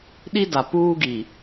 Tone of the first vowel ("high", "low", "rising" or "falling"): high